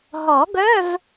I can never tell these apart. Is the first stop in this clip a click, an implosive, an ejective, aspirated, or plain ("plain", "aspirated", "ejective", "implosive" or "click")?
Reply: plain